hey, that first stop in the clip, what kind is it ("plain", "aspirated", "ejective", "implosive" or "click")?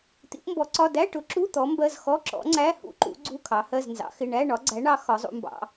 plain